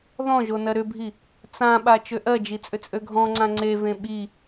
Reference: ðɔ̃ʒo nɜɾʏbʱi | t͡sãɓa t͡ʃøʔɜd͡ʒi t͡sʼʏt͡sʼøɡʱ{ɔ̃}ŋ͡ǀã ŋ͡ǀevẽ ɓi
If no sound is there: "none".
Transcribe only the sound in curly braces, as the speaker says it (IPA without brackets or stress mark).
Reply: ɔ̃